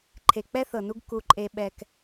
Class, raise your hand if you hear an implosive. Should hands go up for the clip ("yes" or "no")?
yes